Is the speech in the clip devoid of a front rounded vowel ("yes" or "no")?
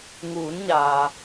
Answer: yes